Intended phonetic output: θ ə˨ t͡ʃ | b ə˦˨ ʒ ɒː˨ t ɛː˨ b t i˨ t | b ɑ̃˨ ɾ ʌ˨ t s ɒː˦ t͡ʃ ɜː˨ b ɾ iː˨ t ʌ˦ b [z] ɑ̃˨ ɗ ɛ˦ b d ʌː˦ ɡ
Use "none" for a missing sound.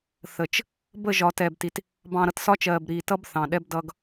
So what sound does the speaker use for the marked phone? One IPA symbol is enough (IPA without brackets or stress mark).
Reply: θ